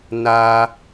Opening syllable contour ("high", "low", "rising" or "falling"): high